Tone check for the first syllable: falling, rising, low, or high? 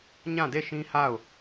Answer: falling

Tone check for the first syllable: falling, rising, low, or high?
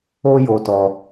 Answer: high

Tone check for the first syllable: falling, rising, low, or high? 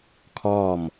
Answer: falling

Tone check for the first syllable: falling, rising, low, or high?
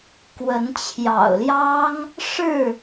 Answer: rising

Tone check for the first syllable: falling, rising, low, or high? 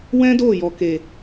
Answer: high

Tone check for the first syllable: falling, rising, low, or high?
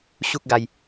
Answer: high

